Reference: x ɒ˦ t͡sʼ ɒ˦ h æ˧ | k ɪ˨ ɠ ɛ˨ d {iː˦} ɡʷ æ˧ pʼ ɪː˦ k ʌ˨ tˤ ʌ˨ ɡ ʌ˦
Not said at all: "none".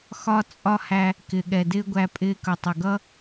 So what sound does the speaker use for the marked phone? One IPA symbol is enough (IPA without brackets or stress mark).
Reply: ɪː˦